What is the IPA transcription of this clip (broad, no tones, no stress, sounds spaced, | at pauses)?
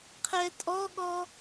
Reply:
qʰ ɛ tʼ ɔ ɠ ɔ